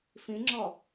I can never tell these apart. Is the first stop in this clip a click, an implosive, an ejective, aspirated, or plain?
click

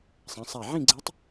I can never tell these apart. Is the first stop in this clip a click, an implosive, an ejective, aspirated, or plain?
click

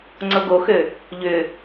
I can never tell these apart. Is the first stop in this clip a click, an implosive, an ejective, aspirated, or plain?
click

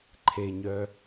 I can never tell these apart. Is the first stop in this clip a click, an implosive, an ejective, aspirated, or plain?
click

